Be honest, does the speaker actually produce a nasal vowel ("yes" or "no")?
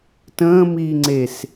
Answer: yes